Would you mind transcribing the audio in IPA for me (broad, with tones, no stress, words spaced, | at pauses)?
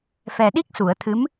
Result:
fɛ˨˩ɗi˦˥k̚su˨˩˨ə̯t̪ʰɨ˧˥m